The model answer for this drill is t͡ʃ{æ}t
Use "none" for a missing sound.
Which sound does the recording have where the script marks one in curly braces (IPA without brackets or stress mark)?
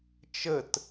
ə